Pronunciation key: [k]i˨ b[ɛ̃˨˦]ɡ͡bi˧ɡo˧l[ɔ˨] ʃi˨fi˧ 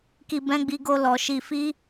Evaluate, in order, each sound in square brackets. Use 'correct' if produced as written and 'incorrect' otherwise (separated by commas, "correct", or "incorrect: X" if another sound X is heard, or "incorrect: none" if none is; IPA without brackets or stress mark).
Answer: correct, correct, correct